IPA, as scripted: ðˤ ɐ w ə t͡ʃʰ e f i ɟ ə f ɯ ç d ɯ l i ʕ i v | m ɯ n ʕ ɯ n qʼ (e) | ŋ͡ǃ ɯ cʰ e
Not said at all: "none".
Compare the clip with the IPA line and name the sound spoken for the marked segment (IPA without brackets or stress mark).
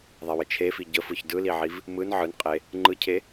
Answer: e